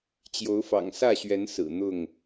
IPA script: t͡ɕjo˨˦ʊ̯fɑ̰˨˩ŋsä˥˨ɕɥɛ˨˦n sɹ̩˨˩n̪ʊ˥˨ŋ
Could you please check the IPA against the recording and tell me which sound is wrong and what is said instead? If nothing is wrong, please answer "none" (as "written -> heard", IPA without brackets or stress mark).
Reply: none